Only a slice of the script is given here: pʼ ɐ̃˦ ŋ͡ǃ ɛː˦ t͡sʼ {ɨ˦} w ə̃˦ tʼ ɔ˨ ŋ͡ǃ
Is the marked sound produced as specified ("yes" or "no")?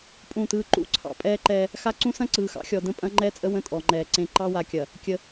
no